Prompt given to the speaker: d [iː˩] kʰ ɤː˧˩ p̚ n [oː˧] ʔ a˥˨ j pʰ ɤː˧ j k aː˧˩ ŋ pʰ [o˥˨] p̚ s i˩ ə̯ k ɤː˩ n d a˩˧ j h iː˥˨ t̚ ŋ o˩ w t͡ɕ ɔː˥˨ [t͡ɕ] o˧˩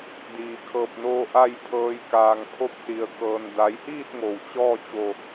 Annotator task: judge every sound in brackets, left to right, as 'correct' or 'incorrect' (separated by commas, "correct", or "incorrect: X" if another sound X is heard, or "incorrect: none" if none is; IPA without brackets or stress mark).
correct, correct, correct, correct